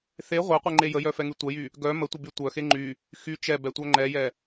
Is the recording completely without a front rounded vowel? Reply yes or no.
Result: no